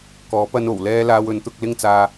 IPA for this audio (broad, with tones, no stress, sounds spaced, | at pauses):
k ɔː˨˥ p ɐ˧ n o˨˩ w l ɛː˧ l aː˧ w ɵ˨˥ n t̪ ʊ˨˥ k̚ l ɪ˥ ŋ t͡s aː˧